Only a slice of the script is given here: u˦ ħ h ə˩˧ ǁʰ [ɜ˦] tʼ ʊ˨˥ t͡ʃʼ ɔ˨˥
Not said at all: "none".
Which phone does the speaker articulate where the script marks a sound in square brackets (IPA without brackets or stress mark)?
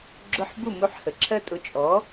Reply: ɜ˦